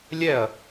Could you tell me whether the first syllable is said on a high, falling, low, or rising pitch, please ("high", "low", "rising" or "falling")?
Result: falling